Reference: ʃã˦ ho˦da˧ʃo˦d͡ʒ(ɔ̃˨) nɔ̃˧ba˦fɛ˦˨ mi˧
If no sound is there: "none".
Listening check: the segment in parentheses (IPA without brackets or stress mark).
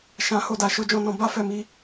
ɔ̃˦